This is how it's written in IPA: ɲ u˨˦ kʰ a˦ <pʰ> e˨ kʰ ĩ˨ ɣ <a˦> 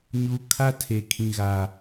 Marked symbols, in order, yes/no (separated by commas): no, no